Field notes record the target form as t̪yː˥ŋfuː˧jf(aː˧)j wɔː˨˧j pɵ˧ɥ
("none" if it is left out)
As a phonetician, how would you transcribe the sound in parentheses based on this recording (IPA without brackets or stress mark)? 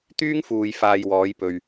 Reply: aː˧